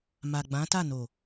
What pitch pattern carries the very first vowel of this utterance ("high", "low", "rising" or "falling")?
low